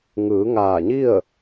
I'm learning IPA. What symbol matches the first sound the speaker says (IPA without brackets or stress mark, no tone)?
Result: ŋ